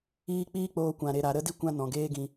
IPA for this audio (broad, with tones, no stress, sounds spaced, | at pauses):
iː˧ k͡p iː˦ k͡p oː˧ kʷ ã˨ ɾ e˨ ɾ a˨ ɾ ə˦ d i˦ kʷ ã˦ n ɔ̃˨ ɡ eː˦ ɡ ĩ˧